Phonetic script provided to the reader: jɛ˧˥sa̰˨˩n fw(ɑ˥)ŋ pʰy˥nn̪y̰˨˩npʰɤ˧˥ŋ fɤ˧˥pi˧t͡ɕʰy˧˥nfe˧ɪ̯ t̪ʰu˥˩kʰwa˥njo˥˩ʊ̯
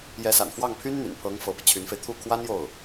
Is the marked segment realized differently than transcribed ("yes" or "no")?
yes